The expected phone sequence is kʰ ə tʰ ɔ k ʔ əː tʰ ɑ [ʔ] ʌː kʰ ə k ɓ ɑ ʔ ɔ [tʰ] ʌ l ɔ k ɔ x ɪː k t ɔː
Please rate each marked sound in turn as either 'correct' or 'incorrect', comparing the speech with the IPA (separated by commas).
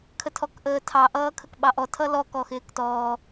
correct, correct